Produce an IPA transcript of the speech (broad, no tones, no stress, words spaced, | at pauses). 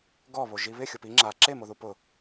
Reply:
ɡɔβo ʒiβɪ xʲʊpi ŋ͡ǁa ǁemoðu pʊ